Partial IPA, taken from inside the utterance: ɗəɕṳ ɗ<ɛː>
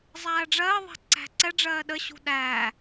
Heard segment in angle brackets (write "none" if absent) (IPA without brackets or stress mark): æː